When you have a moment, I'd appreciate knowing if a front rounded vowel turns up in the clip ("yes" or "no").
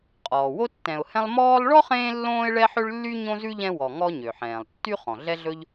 yes